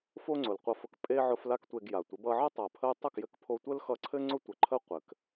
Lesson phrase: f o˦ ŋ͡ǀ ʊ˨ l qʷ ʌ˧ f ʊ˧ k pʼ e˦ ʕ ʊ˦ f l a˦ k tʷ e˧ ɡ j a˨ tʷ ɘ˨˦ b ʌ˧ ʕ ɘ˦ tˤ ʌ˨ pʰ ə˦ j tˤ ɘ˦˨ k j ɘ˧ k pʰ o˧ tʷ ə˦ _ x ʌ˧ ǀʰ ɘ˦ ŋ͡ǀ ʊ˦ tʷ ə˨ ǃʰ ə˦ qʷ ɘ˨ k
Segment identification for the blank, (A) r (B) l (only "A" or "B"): B